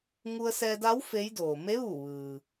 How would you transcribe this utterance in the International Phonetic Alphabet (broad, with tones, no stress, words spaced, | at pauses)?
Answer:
ŋu˧ə̯sɛː˧da˧˥w fe˧˥jdoː˩ me˧˥ʋu˧˩ ʋɯː˩